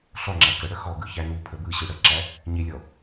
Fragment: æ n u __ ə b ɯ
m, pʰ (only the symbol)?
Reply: pʰ